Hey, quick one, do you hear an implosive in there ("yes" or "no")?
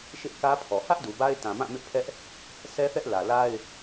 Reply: no